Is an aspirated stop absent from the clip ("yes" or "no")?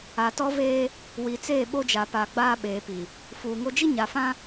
yes